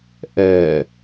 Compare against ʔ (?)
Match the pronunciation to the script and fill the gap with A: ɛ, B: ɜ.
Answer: A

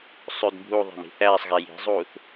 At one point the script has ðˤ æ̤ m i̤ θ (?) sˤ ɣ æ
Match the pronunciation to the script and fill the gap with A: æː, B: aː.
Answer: A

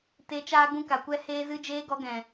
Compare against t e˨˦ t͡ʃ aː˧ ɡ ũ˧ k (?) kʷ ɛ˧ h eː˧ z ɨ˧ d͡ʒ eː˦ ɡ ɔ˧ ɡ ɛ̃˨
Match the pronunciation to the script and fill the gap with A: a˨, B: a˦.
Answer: A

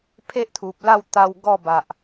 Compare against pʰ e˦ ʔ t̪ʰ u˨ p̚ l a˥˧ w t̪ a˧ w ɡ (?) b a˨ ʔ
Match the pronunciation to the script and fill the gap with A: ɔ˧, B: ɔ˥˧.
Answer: B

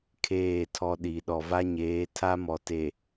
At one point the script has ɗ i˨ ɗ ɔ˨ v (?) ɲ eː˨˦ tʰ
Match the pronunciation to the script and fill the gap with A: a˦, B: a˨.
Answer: A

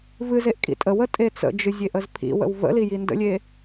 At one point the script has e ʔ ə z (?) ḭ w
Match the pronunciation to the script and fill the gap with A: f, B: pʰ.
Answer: B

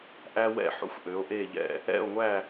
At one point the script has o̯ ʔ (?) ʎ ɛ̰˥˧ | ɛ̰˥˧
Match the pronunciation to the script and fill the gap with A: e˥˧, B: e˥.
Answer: A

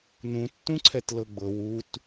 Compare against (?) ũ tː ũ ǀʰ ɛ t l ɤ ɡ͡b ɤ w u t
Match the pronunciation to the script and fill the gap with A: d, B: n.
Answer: B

